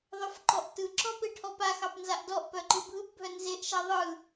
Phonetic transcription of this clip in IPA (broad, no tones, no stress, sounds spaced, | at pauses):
ðˤ œ f ǃ ɔ ʔ t ɯ ǁ ɔ p e ʈʰ ɔ p a x ɑ p n z a ʔ d ɔ ʔ p œ ǃ ɯ bʱ ɯ p bʱ œ n z e ʔ ʃ a ðˤ ɯ